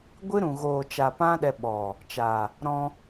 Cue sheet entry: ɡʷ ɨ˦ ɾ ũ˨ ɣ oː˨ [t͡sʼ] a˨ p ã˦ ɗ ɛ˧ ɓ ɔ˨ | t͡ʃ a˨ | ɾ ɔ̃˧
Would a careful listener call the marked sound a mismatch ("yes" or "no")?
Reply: yes